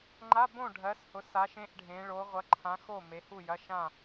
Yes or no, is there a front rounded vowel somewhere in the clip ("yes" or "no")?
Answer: no